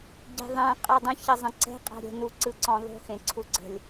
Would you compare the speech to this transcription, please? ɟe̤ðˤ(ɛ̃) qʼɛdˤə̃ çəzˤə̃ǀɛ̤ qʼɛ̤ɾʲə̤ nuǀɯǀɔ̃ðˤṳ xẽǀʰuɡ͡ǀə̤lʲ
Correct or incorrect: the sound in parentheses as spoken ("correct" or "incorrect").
correct